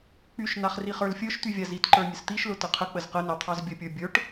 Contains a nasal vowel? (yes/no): no